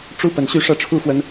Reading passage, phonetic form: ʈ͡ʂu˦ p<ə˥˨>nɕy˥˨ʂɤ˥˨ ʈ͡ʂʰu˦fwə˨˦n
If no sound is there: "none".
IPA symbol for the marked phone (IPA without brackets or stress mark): ə˨˩